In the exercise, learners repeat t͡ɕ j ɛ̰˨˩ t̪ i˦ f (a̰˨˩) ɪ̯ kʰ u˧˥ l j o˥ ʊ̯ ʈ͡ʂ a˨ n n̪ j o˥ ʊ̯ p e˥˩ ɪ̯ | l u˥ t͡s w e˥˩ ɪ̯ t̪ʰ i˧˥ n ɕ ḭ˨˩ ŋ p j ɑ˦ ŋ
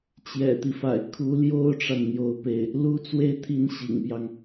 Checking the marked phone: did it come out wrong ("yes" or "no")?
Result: no